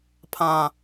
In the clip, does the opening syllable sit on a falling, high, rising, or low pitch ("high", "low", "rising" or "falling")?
high